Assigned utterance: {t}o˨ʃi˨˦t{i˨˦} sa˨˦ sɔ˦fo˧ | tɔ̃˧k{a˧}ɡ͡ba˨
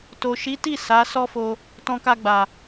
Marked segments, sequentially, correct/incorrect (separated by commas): correct, incorrect, correct